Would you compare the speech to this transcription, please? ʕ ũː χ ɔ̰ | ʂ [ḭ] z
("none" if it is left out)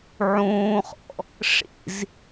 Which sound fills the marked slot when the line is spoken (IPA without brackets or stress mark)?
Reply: ḭ